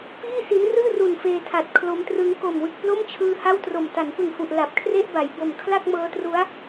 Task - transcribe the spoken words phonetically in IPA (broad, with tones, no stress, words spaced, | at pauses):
piː˥˩si˦˥nrɯː˥˩ru˨˩n feː˧tʰa˨˩t̚ kʰlo˦˥mtrɯ˦˥ŋ ko˨˩mwɯ˨˩k̚plo˥˩mt͡ɕʰɯː˧ ha˥˩wtro˨˩m ta˩˦npɯ˨˩ŋhu˨˩ʔ la˨˩p̚kʰre˥˩ʔba˩˦jbo˨˩m kʰla˥˩k̚mɤː˦˥tru˦˥a̯